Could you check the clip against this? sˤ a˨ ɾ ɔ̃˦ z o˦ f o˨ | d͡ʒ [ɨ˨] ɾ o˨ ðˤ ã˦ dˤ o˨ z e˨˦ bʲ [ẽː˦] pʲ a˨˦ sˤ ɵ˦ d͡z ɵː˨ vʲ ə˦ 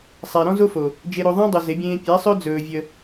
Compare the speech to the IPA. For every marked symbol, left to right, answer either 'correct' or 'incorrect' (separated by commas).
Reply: incorrect, correct